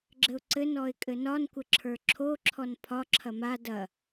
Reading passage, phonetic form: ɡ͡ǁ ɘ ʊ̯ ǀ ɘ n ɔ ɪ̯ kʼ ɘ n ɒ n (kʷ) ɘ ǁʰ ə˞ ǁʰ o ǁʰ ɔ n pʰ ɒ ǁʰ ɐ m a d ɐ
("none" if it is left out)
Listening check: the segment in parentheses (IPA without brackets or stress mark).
kʷ